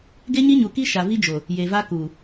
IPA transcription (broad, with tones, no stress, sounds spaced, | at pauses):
ɡ e˦ ɲ i˦ ɲ u˨ k i˦ ʃ a˨ v i˦ d͡ʒ o˨ | j e˨ v a˦ k uː˨